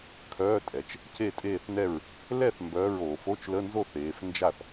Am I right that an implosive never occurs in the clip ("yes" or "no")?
yes